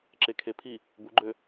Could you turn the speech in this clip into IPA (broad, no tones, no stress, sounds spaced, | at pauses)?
ǁ e kʰ e pʰ i | b u ɡ͡ǃ ø